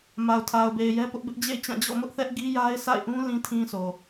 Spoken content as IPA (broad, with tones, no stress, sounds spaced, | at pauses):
m a˨ ʊ̯ tʰ a˨ ʊ̯ b e˨ ɪ̯ j ɛ˦ p ʊ˦ ʔ b ɪ˦ ʔ d͡ʑ ḛ˦˨ ɪ̯ t͡ɕ ã˦˨ d͡ʑ ɔ̰˦˨ m ʊ˦ ʔ θ ɛ˦ ʔ ɡ i˦ j a˦ ɪ̯ s a̰˦˨ ɪ̯ ʔ ũ˦ l ĩ˦ tʰ ĩ˦ s o˨